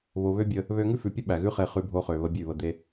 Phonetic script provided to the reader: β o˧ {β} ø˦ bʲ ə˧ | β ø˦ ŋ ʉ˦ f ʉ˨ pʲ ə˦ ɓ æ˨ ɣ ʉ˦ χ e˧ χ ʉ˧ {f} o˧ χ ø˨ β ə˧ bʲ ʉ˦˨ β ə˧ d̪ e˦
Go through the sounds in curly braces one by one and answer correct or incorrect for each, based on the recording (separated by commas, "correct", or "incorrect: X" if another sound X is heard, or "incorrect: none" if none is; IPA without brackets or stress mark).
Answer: correct, incorrect: bʱ